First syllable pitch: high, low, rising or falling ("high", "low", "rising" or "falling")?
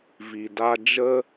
low